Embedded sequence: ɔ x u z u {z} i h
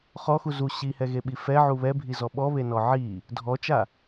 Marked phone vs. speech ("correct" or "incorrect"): incorrect